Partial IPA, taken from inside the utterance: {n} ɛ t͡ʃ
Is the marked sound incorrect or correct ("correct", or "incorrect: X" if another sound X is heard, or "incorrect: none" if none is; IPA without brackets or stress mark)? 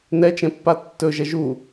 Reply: correct